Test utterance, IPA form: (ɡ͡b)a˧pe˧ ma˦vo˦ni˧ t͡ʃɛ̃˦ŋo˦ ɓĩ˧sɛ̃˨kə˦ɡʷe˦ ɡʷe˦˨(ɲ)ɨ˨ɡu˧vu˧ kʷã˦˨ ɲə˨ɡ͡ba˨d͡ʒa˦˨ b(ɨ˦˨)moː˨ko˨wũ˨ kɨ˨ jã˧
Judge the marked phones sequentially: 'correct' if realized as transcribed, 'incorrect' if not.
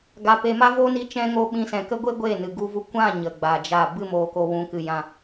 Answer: incorrect, incorrect, correct

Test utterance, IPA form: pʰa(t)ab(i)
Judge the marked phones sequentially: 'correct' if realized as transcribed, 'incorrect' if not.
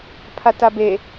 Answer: correct, incorrect

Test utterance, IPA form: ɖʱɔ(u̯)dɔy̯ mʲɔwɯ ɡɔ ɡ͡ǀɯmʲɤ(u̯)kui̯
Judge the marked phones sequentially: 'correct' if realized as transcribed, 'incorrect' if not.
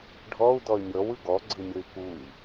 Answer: correct, incorrect

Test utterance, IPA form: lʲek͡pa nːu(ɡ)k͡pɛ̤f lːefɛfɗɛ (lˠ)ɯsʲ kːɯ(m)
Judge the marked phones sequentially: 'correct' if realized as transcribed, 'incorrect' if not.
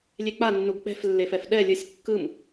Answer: correct, incorrect, correct

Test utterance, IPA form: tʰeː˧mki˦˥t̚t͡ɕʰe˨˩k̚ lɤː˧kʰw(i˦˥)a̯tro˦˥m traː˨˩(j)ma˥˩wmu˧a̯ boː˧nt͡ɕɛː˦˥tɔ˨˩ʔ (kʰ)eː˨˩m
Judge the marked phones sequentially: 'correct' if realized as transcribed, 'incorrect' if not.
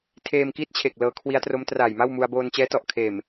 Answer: correct, correct, correct

